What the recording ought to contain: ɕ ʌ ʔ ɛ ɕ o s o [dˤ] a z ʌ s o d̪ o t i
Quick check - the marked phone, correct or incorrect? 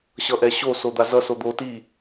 incorrect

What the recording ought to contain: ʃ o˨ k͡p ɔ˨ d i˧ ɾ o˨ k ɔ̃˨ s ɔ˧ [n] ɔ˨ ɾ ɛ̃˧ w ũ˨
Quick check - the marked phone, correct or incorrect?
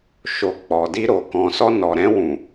correct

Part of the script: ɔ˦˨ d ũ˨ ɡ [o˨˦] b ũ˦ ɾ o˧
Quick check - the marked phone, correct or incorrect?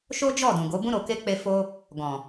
correct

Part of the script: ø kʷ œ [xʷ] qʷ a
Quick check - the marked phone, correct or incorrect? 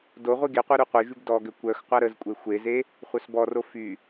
incorrect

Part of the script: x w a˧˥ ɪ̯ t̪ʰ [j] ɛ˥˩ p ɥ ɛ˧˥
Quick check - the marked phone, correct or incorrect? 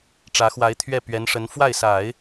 incorrect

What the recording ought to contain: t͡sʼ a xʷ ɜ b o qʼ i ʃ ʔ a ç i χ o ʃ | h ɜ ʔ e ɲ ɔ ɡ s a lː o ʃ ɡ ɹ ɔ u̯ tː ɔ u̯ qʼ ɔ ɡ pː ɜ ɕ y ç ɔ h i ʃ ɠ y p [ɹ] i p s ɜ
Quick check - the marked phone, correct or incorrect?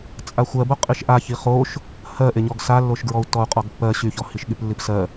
incorrect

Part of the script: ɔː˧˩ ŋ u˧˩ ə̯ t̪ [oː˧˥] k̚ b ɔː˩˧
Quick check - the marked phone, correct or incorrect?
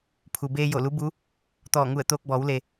incorrect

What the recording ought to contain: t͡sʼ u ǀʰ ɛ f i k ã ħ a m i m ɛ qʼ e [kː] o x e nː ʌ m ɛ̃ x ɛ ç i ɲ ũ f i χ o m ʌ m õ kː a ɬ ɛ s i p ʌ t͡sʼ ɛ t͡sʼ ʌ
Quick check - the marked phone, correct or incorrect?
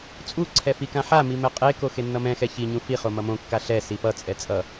incorrect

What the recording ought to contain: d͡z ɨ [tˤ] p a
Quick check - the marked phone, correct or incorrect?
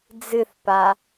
incorrect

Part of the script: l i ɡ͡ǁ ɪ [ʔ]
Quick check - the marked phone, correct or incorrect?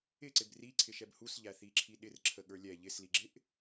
correct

